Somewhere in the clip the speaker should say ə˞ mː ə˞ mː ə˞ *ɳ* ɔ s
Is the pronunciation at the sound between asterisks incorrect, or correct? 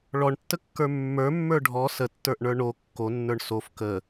incorrect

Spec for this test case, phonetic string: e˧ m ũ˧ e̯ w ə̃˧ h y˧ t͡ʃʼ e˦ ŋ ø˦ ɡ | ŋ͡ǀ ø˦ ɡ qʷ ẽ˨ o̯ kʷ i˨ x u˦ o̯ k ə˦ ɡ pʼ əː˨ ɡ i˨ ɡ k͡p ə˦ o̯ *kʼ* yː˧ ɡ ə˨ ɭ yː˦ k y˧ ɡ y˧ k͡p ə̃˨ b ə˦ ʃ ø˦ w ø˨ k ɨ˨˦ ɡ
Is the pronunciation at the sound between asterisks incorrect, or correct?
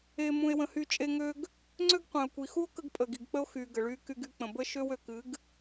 incorrect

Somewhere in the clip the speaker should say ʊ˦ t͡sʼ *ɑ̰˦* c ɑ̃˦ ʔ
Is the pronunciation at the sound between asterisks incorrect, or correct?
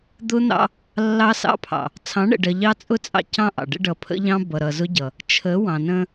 correct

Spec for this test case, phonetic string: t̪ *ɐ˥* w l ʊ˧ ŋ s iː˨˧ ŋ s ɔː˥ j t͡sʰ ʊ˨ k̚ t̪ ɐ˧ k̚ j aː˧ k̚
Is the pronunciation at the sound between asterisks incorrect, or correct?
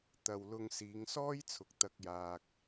incorrect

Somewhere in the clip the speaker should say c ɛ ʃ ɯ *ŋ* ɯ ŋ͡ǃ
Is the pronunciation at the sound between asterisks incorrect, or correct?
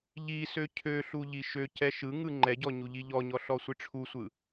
correct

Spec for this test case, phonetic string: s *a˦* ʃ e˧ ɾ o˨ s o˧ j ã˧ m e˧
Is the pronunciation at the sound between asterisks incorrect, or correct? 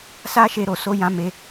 correct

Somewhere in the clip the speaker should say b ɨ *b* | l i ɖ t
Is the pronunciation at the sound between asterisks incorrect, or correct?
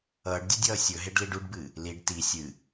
incorrect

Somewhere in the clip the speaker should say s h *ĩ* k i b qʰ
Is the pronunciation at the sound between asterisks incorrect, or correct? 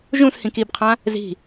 correct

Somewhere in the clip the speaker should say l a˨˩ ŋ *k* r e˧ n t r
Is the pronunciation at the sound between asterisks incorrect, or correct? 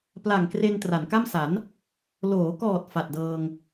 correct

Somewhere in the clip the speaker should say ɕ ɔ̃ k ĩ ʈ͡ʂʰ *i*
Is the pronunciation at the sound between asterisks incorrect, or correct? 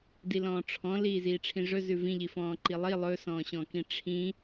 incorrect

